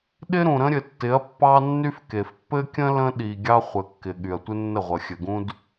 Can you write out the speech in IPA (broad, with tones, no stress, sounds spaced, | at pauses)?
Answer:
ɗ ɪ˦ ɾ ũ˨ ɾ ə̃˦ ɾʲ ɘ˨ tː ɪ˨˦ ɐ̯ pː ɑ˦ nː y˦ f k e˨ f pː ɘ˦ kʲ ə̃˦ l ə̃˦ ɗ i˨ ɡʲ ɑ˦ χʷ ɘ˨ kː ɪ˨ ɠ y˨ ɐ̯ tʷ ɪ˦ nː ə˦˨ ʁʷ ə˨ xʲ ɘ˨ ɡ ũ˦ d